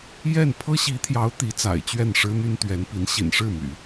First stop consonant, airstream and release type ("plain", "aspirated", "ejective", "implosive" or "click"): aspirated